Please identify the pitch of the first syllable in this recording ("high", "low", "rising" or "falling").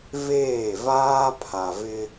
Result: falling